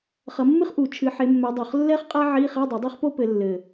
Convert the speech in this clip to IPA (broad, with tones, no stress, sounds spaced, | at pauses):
χ ɐ˨˦ mː ɨ˥ χ ʔ u˨˩˦ t͡ʃʰ ɨ˨˦ ħ e˨˦ mː ɛ˨˦ dˤ o˨˩ χ lː ɛ˥ χ qʼ a˥ ʕ i˧˥˧ χ ɛ˧˥˧ dˤ ɘ˨˩˦ dˤ ɛ˥ χ p o˥ p ɘ˨˦ lː ɘ˨˩